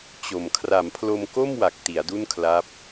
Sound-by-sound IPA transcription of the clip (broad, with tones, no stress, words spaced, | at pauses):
t͡ɕo˨˩m kʰra˩˦mpʰlo˧mko˥˩mwa˨˩k̚ ti˩˦a̯du˥˩nkʰla˦˥p̚